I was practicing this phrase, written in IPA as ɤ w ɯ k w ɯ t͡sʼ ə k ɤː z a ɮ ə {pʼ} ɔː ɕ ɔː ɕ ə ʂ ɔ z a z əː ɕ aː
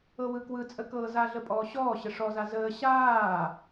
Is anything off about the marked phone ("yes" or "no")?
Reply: no